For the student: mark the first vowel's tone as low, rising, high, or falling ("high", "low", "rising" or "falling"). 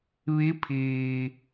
rising